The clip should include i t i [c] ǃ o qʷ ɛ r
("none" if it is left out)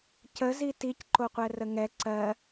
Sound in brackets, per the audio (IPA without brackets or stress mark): c